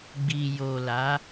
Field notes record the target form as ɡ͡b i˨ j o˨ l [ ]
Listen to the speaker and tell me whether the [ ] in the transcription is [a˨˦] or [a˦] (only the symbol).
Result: a˨˦